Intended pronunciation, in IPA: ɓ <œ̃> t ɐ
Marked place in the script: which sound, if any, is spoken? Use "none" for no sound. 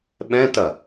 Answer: ɛ̃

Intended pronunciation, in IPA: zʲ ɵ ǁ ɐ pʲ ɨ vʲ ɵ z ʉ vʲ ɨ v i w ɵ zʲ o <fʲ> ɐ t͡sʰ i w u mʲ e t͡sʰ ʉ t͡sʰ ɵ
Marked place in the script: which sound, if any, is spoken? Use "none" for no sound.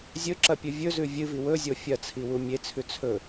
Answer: fʲ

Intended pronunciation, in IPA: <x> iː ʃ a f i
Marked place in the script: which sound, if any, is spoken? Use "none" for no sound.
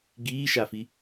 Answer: ɡ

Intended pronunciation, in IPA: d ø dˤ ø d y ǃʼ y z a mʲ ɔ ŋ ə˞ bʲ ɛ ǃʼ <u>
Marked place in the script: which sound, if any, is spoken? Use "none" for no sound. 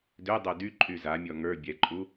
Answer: u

